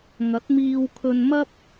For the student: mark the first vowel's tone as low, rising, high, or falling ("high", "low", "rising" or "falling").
rising